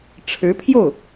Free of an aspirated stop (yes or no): no